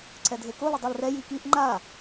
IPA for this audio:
ǀʰ ɛ dʱ e k o l ɔ dˤ i l r ɛ j i k i ʔ ŋ͡ǃ a

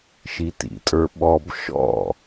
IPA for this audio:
ʃ i t ḭ tʼ ə˞ ɓ ɔ b ʃ ɔ̰

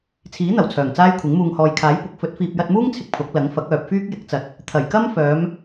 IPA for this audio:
t͡sʰ iː˨˥ n̪ ɐ˨˩ w t͡sʰ œː˨˩ ŋ t͡s aː˥ j kʷʰ ɪ˨˥ ŋ m uː˨ ŋ h ɔː˨ j kʰ aː˨˥ j p ʊ˨˥ k̚ f ɵ˨˥ t̚ f iː˨ p̚ j ɐ˧ t̚ m uː˥ ŋ t͡sʰ ɪ˧ k̚ pʰ ʊ˨˥ k̚ l ɐ˨˥ ŋ f ɐ˨˥ k̚ œː˨ p̚ f yː˥ k̚ j ɪ˨˥ k̚ t͡s ɐ˨ t̚ | t̪ʰ ɐ˨˩ j k ɐ˥ m f œː˨˧ m

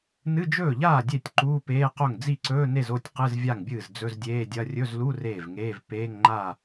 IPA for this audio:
n ɨ˧˥˧ d͡ʒ ɵː˥˩ ʎ aː˥˩ dʲ e˥˩ tʲ ǃ uː˧˥˧ p eː˧˥˧ q o˥˩ ŋ d͡z i˥˩ ǀ ɵː˧˥˧ n e˥˩ z o˥˩ tʲ q ɨ˧˥˧ z vʲ a˥˩ ŋ bʲ ɨː˥˩ z d͡z ɵ˧˥˧ z dʲ eː˧˥˧ dʲ ɐ˧˥˧ rʲ ɵ˧˥˧ z l u˧˥˧ r eː˥˩ v ŋ eː˧˥˧ v p eː˧˥˧ ŋ ŋ͡ǃ a˥˩

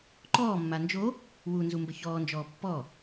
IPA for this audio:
ǃ ɔː mː a n d͡ʒ o | w u n z u m b ə ç ɔː n d͡ʒ ɔː pː ɔ

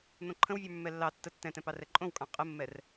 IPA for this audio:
n̪ õ ǃʰ ə̃ w vʲ ə˞ mː ɛ lː ɑ tː ə tː ɛ̃ t ɛ̃ p ɑ r ɛ ǃʼ õ w kʼ ɑ̃ qʼ ə mː ɛ r

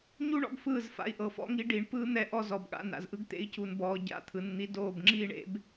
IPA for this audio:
ɲ u˦ ɳ ɔ̰˦ ɡ f ɯː˦˨ z f a̰˧ i̯ ʔ ɤ˨ f ɔ̰˦ ŋ i˧ ɖ i˨ ɳ p ɯː˦ n̪ ɛ˧ ʔ ɔ˧ z ɔ˨ b ɠ a̰˧ n a̰˨ z ʔ ɯ˦ ɡ t̪ ḛ˧ i̯ c u˨ n b ɔː˨ ɟ a̰˦ t̪ʰ ɯ˨ n n̪ i˧ d oː˦˨ b ŋ͡ǁ iː˦ ɳ ḛ˦ b

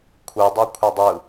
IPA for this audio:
kʷʰ ɯ dˤ o kʷʰ ʌ dˤ ɯ

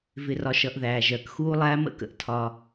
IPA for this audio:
v ɪ˨ r ɒ˨ ʃ ʌ˨ ʔ ð æː˨ ʒ ɜ˨ k x uː˦ lˠ æː˦ m ə̰˦˨ k ə̰˨ ʔ tʰ ɒ˦

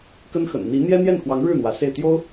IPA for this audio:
k ə˥ n x ə̰˨˩ n n̪ i˧˥ n̪ j ɛ˥ n̪ j ɛ˥˩ n x w ɑ˧˥ ŋ ɻ ɻ̩˥˩ n̪ w ä˧˥ s e˥˩ ɪ̯ t̪ j o˥ ʊ̯

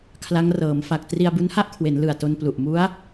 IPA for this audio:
kʰ l a˦˥ ŋ r ɤː˩˦ m f a˨˩ k̚ t r i˧ a̯ b u˦˥ n h a˥˩ ʔ kʰ w e˩˦ n l ɯ˨˩ a̯ t o˧ n p l u˨˩ ʔ m u˦˥ a̯

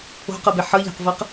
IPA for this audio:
o̤ q ɤ b e ħ ɤ ʎ a̤ q v ɤ q

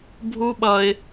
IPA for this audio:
bʱ u˦ ɓ ʌ˧ ɪ̯

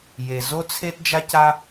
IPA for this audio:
j e˩ z o˥ t͡sʰ e˥ t d͡ʒ a˥ c a˥

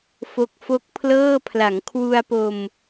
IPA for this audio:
f o˦˥ k̚ f o˦˥ k̚ pʰ l ɤː˥˩ pʰ l a˩˦ ŋ kʰ w u˧ a̯ p o˧ m

